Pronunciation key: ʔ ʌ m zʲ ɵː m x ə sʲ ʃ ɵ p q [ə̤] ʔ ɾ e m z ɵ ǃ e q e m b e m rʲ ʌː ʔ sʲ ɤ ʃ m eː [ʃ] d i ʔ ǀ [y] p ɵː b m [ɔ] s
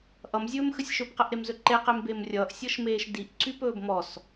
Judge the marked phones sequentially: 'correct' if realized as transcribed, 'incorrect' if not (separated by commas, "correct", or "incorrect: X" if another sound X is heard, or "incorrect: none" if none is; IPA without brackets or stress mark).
incorrect: ə, correct, correct, correct